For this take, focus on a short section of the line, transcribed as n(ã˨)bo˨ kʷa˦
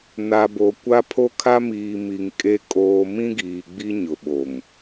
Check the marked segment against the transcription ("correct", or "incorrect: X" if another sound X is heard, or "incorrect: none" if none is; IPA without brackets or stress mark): incorrect: a˨